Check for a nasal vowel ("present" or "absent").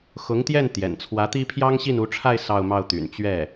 absent